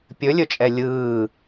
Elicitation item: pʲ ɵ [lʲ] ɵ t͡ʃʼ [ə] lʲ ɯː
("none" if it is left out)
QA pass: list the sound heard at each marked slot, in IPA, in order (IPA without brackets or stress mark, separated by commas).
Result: lʲ, ɛ